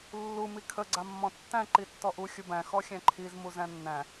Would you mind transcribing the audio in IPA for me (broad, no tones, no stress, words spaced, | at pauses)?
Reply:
lːu mikʰə ɡ͡ǀamːɔ̃tːæ̃ ǃitːɔʔu xʲubæ̃ xɔxʲæ̃ǃʰiz muzæ̃nːæ̃